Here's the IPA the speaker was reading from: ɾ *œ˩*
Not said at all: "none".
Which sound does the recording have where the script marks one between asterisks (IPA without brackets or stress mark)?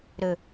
ɵ˩